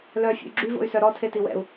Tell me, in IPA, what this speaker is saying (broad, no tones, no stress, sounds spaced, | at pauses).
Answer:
l œ fʲ ṵ y̯ ɡ͡ǁ y v o̰ y̯ s œ ɾ ɔ tʰ e t i w ɛ̰ u̯